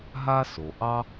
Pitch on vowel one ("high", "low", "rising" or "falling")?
high